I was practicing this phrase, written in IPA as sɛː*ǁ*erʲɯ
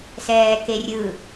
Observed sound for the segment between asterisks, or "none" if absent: k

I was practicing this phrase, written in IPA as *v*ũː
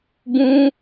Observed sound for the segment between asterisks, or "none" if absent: b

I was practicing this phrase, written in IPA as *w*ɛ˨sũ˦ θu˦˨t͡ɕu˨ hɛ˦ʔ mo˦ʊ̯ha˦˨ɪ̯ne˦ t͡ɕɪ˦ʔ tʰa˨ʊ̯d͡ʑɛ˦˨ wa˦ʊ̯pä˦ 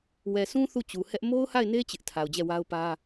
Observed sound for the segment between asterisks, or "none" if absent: w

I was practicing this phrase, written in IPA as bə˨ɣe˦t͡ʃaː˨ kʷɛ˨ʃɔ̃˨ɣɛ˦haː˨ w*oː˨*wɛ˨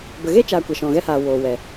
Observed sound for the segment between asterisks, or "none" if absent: oː˨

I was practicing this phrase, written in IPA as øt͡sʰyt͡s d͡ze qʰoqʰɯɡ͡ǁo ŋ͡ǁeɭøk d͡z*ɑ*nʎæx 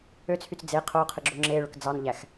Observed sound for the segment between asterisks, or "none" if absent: ɑ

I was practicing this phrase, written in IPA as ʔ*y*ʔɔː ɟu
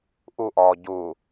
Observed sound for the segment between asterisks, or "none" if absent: u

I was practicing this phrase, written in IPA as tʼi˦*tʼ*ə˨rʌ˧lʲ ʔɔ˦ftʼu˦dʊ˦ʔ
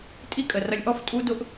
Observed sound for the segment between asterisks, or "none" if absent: kʼ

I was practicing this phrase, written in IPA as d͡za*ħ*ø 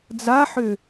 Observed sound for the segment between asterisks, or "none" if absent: ħ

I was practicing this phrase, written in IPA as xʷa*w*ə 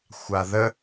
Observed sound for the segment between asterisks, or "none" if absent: ð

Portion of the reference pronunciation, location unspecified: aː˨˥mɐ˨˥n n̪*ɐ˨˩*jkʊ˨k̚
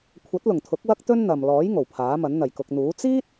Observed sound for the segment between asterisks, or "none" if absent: ɐ˨˩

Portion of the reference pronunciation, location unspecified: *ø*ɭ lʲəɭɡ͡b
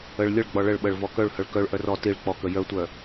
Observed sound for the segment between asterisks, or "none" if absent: ə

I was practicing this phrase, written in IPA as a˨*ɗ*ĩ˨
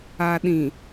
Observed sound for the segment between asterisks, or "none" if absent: ɗ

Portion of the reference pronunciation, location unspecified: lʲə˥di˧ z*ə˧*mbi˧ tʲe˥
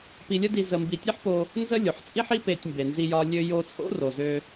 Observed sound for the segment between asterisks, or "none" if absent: ə˧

